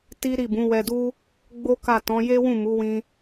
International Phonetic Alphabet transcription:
t i˦ ɾ i˦˨ b ũ˨˦ w ɛ˧ d u˦ | ɡ͡b o˦ k a˦˨ t ɔ̃˨˦ j e˦ w ũ˦˨ m u˨˦ w ĩ˧

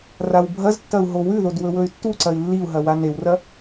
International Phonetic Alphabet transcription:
r a w bʱ ɐ z tː ɐ u̯ ɦ o w ʉ ð o d w ɵ w ɵ y̯ tː u ǀ ɐ i̯ lː i u̯ ɦ ɐ w a n e w r ɐ

